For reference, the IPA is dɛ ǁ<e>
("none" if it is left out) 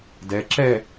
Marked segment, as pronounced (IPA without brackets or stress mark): ɛ